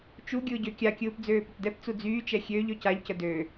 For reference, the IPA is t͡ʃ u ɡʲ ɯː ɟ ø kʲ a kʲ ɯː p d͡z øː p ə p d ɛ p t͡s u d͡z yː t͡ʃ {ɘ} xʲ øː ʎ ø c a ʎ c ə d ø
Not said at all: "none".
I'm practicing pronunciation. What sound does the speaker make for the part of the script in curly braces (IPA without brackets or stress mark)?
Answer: ɛ